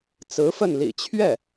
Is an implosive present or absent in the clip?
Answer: absent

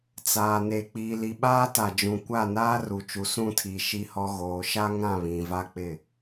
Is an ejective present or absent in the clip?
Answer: absent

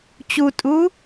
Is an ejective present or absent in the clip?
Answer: present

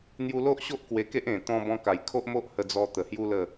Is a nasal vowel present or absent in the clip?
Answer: present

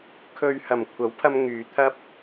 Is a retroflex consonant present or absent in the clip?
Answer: absent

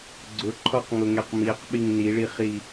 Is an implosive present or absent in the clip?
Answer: present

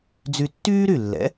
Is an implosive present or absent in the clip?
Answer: absent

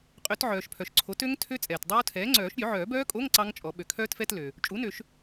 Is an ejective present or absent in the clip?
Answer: present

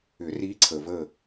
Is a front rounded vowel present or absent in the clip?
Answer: present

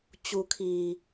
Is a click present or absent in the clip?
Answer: absent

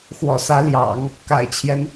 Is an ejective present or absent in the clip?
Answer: absent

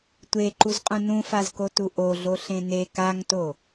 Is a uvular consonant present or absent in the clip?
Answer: present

